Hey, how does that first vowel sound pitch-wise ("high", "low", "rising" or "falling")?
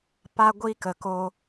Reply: high